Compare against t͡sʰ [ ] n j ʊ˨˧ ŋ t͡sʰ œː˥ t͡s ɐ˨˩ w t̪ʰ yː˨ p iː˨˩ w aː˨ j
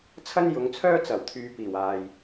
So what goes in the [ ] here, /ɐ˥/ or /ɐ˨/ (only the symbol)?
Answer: ɐ˥